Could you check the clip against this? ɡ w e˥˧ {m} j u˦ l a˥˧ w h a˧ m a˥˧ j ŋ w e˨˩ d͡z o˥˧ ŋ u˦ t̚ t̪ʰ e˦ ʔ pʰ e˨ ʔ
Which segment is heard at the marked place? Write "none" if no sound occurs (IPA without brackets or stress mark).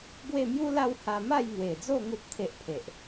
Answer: m